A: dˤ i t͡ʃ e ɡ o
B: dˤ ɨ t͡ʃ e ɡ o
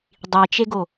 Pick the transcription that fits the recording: A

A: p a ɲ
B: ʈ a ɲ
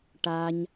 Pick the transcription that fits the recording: B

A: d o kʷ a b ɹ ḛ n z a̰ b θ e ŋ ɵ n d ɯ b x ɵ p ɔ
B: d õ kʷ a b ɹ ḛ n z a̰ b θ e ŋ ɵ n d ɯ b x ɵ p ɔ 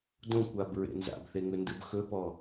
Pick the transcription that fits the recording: B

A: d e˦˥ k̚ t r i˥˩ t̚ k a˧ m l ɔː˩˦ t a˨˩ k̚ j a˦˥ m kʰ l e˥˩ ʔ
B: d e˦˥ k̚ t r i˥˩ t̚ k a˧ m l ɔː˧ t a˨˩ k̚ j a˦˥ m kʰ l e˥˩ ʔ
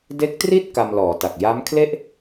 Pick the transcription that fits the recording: A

